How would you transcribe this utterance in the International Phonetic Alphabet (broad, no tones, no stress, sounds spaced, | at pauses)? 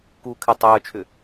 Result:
k uː kʰ ɪ tˤ œː t͡ʃʰ ʏ